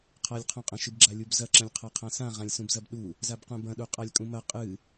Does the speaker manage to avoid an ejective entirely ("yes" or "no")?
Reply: no